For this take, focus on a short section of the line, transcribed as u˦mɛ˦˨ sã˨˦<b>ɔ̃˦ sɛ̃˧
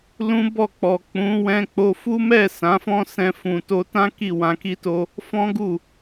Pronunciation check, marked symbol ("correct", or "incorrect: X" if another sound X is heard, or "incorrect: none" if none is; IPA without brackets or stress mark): incorrect: f